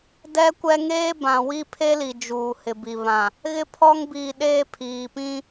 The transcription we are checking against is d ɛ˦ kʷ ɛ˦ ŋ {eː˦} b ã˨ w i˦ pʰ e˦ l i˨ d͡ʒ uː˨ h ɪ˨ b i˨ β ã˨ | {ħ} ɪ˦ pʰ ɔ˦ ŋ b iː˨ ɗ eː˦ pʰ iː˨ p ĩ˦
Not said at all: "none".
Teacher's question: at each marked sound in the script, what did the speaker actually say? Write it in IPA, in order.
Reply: eː˦, ɣ

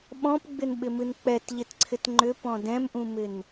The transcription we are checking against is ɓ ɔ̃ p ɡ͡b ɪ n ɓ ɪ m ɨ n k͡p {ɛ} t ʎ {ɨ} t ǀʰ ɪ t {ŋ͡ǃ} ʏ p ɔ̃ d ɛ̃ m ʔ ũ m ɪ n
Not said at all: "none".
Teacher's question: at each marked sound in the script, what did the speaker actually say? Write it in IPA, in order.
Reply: ɛ, ɪ, ŋ͡ǃ

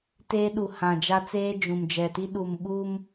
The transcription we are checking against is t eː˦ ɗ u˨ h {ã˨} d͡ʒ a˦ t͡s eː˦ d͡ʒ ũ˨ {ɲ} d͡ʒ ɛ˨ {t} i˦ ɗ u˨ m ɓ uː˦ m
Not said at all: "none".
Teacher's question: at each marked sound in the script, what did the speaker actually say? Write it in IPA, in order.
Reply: ã˨, m, t

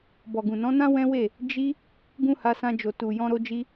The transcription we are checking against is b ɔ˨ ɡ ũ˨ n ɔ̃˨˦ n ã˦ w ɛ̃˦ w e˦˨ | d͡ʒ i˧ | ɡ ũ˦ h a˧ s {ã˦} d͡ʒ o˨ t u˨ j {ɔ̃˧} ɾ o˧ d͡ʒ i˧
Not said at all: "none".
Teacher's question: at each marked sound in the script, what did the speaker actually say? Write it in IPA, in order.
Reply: ã˧, ɔ̃˧

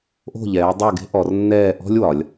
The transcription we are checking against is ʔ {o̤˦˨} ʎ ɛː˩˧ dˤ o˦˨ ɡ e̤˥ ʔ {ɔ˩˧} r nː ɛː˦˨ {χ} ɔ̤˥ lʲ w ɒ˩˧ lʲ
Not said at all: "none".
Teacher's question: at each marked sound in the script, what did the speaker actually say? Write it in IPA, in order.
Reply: o̤˦˨, ɔ˩˧, ʔ

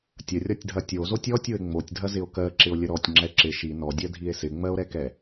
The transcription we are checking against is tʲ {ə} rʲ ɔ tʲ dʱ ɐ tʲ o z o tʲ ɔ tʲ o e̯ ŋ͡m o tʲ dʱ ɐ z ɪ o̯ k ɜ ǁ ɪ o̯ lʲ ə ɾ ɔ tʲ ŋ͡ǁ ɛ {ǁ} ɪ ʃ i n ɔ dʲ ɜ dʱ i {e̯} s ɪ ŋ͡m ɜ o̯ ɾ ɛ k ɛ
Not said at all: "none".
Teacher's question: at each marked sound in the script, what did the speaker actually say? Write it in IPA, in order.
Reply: ə, ǁ, e̯

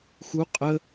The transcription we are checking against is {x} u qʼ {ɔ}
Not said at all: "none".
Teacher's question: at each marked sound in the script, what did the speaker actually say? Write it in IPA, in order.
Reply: x, ə

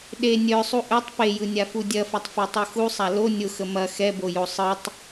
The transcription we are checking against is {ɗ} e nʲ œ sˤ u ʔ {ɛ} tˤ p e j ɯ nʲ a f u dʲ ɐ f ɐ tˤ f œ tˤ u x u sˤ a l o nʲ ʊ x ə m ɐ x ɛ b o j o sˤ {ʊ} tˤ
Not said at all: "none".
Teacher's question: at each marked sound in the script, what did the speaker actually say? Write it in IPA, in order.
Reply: ɗ, œ, ɯ

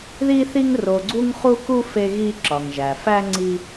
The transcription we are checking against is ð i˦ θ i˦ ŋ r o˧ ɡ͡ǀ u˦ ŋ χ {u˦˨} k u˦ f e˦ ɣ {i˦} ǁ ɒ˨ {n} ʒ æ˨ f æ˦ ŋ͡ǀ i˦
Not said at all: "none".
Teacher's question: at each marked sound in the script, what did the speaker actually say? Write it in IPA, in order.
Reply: u˦, i˦, ŋ

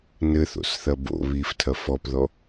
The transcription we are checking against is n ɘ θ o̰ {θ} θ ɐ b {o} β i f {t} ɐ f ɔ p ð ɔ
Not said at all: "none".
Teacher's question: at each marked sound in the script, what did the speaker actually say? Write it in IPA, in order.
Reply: s, o̰, tʰ

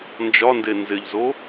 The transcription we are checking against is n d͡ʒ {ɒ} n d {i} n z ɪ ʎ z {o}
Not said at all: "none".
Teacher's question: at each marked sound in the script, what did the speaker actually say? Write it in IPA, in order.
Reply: ɒ, e, o

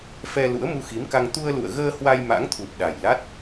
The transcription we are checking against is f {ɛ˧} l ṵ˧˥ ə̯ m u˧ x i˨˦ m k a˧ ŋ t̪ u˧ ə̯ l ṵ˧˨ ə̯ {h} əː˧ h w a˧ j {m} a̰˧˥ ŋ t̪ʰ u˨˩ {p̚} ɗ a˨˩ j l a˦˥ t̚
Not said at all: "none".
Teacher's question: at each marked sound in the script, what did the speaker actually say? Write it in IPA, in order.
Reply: ɛ˧, ɣ, m, p̚

